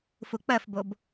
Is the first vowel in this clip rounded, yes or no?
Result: yes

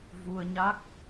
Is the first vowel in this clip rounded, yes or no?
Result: yes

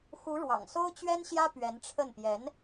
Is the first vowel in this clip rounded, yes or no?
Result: yes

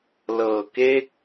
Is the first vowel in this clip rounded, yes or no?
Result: no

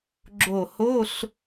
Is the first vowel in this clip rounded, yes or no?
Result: yes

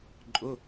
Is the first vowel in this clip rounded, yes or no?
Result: yes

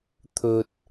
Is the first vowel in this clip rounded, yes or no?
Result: yes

